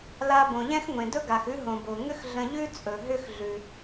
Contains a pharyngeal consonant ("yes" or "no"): no